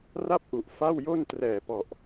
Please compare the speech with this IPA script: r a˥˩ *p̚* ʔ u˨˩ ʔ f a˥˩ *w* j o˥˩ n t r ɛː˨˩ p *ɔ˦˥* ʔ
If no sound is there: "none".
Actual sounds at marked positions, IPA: p̚, w, ɔ˨˩

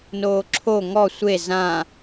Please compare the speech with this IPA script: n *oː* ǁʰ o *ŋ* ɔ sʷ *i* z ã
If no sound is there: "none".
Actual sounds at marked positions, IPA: oː, ŋ, e

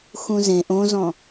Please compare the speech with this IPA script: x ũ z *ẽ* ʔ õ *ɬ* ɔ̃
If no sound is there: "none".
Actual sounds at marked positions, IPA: ẽ, z

